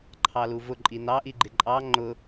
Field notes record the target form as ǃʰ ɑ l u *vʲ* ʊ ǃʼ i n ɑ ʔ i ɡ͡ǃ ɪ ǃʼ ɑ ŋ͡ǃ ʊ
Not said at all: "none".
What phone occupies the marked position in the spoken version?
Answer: v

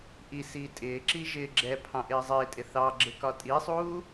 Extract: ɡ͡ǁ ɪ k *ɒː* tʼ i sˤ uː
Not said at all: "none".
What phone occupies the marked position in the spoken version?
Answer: ɒ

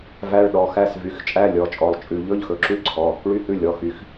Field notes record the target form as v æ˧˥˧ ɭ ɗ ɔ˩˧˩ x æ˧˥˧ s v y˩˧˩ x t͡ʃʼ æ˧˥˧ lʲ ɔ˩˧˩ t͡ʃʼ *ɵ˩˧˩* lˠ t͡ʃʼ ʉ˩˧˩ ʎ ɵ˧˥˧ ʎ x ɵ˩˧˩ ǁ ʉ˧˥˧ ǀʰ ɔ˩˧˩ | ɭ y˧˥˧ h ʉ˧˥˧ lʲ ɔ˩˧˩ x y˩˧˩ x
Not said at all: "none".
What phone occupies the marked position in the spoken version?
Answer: ɔ˩˧˩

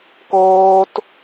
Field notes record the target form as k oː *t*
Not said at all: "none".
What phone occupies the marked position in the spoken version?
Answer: t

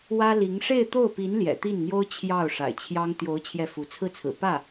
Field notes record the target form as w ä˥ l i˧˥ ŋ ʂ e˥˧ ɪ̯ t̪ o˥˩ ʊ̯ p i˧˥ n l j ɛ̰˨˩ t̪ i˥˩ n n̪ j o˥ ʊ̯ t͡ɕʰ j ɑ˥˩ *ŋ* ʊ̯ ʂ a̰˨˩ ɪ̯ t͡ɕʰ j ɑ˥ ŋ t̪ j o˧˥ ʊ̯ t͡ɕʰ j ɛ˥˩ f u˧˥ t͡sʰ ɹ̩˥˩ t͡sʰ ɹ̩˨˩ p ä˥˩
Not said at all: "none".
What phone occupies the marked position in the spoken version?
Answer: none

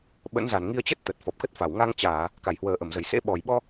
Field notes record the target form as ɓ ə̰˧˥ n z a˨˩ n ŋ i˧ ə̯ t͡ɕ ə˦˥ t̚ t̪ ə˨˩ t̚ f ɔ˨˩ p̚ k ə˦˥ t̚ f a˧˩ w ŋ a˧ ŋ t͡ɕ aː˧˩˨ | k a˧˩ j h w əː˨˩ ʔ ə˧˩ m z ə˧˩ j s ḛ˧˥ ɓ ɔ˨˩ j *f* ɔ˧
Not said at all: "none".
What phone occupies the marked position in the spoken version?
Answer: ɓ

